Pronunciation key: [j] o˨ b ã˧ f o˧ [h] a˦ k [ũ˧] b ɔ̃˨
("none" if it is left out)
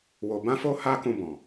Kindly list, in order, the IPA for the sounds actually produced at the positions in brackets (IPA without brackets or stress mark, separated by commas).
w, h, ũ˧